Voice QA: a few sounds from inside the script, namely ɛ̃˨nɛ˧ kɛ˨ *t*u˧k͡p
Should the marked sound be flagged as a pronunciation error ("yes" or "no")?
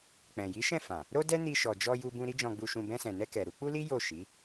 yes